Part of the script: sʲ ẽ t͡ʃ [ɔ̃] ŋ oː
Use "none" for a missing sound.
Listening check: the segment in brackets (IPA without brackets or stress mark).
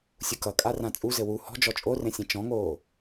ɔ̃